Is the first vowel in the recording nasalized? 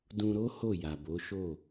yes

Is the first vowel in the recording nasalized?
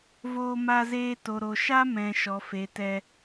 no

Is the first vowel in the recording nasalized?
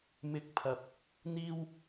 no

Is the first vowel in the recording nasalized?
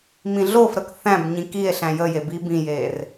yes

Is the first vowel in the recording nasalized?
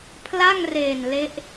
no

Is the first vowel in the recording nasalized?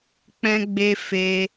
yes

